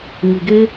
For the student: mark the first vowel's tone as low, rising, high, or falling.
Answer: low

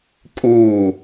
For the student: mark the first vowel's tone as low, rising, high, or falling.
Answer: falling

